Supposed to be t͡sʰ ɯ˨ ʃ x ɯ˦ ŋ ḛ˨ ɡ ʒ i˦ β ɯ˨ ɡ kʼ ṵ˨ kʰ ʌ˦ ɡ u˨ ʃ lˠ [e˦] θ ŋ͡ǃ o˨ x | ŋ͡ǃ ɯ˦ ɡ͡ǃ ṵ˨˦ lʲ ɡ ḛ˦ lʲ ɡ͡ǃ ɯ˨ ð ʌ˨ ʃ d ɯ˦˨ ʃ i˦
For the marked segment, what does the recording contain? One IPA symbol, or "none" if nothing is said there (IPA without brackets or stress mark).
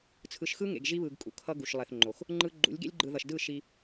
e˨